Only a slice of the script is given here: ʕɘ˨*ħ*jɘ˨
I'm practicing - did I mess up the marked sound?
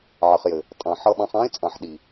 yes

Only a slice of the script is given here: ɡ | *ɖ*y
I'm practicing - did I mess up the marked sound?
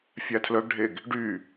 no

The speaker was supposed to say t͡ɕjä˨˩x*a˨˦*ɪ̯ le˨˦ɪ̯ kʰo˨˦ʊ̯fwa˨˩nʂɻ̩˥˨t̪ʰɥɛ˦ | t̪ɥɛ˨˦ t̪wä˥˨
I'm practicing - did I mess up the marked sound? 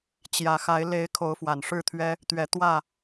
no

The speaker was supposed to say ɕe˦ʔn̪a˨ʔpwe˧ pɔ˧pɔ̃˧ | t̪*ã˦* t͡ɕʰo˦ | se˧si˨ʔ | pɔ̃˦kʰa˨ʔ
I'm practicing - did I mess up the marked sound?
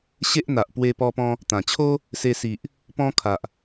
yes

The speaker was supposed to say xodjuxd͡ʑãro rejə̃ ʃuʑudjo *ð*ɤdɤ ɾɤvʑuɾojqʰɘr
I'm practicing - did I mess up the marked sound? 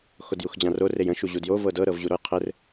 yes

